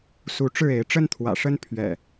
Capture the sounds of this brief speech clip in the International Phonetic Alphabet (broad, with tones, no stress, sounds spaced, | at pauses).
s u˨˦ ʈ͡ʂ ɻ̩˥˨ e˨˦ ɪ̯ ʈ͡ʂ ə˦ n t̪ʰ w ä̰˨˩ ʂ ə˦ n pʰ ɥ ɛ̰˨˩